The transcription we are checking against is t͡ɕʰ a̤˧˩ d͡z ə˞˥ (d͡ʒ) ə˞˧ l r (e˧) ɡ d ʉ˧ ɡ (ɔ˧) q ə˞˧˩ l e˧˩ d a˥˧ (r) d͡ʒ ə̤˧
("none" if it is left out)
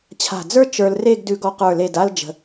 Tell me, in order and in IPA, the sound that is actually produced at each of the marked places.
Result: t͡ʃ, e˥˧, ɔ˧, l

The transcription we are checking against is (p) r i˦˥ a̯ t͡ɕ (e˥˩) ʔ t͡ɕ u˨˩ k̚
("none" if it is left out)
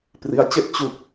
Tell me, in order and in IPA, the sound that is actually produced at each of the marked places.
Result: p, e˥˩

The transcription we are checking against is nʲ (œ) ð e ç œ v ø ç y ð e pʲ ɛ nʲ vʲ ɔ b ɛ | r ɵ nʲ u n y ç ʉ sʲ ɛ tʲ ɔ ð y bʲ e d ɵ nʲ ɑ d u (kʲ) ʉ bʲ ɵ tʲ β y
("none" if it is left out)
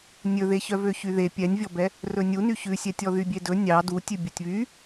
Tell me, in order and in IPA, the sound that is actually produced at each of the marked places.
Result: ɵ, tʲ

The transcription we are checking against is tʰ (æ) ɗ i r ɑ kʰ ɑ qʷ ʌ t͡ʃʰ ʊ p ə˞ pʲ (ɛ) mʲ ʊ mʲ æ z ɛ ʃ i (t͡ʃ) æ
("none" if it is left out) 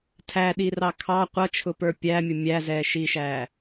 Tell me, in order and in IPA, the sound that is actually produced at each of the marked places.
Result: æ, æ, ʃ

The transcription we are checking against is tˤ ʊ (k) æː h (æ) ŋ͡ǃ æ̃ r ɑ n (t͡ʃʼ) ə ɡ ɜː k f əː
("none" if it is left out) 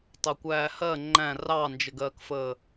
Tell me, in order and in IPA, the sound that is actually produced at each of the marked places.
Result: kʷ, ɜ, d͡ʒ

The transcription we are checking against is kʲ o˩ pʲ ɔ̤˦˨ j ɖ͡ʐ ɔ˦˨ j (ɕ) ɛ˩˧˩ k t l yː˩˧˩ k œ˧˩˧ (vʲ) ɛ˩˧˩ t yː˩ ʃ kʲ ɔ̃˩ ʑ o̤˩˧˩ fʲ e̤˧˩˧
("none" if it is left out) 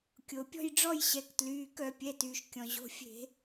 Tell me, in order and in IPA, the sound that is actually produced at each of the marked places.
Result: ɕ, pʲ

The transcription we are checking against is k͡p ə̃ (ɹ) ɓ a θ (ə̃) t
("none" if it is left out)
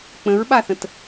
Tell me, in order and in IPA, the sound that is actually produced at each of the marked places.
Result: ɹ, ə̃

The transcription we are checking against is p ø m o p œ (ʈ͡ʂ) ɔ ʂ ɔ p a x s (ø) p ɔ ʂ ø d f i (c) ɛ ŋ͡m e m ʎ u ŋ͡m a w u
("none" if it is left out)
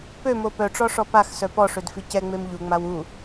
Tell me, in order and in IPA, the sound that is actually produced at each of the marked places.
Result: ʈ͡ʂ, œ, c

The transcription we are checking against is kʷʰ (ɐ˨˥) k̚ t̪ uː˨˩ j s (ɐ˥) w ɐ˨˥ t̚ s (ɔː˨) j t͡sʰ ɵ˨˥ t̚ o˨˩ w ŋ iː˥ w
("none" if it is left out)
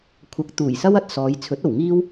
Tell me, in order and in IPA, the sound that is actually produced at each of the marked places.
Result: ɐ˨˥, ɐ˥, ɔː˨˧

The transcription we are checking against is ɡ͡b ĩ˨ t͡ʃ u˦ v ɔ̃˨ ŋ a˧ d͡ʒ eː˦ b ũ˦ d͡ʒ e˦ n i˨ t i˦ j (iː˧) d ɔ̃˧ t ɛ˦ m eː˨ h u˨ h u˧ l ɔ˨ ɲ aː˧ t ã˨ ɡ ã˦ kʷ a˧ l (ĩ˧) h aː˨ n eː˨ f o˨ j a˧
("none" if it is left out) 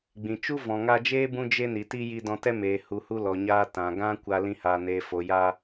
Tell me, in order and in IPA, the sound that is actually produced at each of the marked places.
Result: i˧, ĩ˧

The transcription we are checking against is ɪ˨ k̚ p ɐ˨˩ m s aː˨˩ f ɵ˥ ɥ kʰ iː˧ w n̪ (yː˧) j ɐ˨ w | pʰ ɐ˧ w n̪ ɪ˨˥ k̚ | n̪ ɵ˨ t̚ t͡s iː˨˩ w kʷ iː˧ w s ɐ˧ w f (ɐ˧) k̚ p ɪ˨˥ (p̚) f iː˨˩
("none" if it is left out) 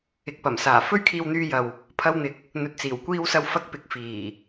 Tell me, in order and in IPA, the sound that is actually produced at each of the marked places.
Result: yː˧, ɐ˧, k̚

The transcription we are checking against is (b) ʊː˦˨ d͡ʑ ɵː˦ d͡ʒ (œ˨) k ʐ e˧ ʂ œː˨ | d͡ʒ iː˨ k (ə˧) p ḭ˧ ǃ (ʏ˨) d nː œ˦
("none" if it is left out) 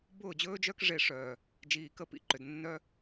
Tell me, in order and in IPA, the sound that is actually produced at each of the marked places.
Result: b, œ˦, ə˧, ʏ˨

